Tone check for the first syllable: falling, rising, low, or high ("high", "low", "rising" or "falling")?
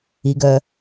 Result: low